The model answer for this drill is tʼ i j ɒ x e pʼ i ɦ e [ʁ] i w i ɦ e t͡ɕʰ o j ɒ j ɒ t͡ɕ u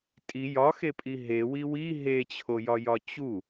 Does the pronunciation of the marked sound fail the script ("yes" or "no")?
yes